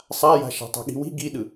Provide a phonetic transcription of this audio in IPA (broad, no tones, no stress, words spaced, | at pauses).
sˤaja̤ ʃa̤tˤa̤ɠi̤wi̤ ɡiɗɯ